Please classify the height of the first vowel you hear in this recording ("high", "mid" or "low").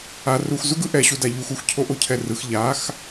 low